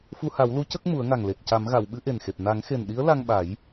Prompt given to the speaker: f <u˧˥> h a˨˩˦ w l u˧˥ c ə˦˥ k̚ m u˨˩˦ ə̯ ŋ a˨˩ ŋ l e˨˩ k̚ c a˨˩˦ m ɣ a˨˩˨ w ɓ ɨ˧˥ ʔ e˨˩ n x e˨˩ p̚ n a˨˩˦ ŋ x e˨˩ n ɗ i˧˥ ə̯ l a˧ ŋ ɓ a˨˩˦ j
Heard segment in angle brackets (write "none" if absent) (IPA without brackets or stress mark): u˧